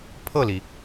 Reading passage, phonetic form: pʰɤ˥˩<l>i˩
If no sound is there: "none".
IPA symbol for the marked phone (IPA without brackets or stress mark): l